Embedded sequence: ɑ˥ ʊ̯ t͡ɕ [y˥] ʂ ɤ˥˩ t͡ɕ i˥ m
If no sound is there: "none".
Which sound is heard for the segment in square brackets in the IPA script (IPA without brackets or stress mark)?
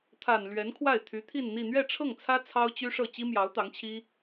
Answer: y˥